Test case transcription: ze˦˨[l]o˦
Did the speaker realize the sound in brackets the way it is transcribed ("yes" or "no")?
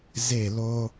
yes